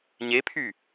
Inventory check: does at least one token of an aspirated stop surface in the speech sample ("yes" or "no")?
yes